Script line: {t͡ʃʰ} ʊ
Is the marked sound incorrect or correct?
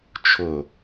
correct